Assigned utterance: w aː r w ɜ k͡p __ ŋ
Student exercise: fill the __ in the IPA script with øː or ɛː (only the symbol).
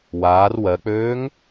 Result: øː